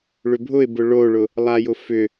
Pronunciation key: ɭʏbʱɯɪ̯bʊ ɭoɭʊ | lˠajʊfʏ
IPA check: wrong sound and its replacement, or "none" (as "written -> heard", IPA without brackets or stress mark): ɯ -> ʊ